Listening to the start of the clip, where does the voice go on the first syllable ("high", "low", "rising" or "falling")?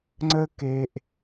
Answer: high